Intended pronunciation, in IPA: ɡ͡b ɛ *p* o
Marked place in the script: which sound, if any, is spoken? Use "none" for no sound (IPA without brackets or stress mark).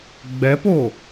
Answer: p